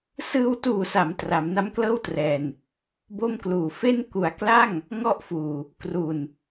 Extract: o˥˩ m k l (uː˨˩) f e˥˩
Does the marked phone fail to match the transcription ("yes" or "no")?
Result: no